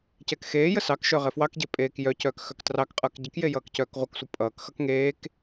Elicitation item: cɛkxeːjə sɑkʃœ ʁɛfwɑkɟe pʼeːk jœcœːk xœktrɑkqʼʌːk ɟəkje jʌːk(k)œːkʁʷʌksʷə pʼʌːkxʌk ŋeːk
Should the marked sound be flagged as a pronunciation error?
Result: yes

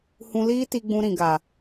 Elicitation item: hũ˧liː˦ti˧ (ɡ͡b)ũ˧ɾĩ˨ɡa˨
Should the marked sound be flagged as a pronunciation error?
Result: no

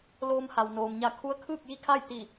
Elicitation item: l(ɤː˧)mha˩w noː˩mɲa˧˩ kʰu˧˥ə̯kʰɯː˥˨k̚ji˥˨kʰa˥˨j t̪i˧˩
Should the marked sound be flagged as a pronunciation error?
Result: yes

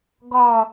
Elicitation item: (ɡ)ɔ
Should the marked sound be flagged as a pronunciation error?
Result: no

